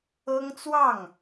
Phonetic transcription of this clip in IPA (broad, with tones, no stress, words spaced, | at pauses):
ɤ˥ŋt͡swɑ˥˩ŋ